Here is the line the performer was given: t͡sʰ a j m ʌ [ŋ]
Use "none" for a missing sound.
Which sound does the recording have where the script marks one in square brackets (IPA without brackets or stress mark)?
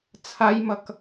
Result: k